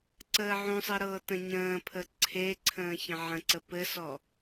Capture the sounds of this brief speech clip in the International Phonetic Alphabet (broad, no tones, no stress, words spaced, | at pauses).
ǀəːʕũsˤɘ ɾɤːtə̃ɲə̃ːpʰə ǀʰeǀʰə̃ː çə̃ʕə̃ǀə pɘsɔ